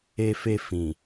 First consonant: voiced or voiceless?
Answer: voiceless